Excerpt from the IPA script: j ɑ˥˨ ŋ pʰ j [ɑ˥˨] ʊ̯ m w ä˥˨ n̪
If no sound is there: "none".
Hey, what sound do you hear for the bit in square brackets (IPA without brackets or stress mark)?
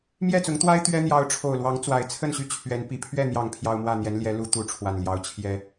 ɑ˦